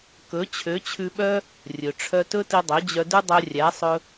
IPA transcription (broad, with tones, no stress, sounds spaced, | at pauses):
k ɵ˨˦ t͡ɕʰ ø˨˦ t͡ɕʰ ʉ˧ ɓ œ˦ | rʲ ɵ˨ ʈ͡ʂʰ œ˧ t ɵ˦ t i˧ dˤ ɵ˨˦ d͡ʑ œ˧ d ʉ˦ dˤ œ˧ rʲ æ˨˦ sˤ ɵ˧